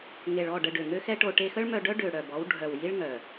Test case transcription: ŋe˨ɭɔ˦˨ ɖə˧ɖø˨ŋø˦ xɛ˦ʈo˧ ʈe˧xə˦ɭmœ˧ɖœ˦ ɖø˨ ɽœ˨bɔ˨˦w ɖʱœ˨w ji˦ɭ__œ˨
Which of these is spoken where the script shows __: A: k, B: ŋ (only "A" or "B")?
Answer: B